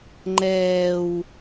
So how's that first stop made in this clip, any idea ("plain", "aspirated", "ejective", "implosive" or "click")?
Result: click